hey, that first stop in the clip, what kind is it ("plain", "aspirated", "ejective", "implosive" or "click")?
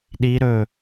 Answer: implosive